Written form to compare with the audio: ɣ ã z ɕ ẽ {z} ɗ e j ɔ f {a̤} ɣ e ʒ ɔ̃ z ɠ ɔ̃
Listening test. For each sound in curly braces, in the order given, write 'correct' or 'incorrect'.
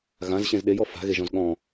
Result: correct, correct

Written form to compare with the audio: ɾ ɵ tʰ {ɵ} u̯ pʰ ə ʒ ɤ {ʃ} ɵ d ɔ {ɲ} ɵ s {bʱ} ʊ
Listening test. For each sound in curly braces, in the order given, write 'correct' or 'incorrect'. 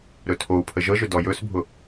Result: incorrect, incorrect, incorrect, correct

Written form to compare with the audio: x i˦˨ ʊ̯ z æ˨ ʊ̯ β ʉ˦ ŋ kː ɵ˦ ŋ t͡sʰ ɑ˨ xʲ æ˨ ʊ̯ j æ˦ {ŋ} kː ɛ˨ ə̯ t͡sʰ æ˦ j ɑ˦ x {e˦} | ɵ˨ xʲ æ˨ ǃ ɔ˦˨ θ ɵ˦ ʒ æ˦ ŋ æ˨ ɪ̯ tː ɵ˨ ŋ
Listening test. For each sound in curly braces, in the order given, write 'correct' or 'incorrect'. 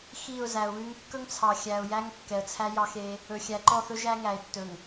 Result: correct, correct

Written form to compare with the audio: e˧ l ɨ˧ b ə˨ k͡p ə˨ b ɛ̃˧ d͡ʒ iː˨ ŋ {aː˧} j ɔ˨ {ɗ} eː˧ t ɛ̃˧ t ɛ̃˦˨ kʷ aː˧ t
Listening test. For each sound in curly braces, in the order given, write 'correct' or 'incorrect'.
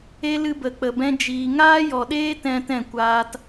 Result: correct, correct

